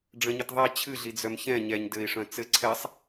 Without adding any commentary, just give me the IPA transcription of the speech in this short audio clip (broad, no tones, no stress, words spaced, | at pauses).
ɖ͡ʐə̃ɲət ðˤɛ t͡ɕʰɨɮid͡zœm çɛ̃ ɲɛɲ dɘi̯ʂœ̃ t͡sɘ ǀʰɛsˤ